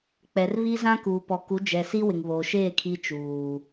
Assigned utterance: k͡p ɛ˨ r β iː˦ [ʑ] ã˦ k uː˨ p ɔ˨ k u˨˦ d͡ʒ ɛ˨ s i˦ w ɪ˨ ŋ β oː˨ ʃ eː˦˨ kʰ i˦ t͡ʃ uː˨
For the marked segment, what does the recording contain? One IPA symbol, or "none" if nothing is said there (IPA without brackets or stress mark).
z